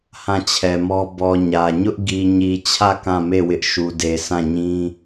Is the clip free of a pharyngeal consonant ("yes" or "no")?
yes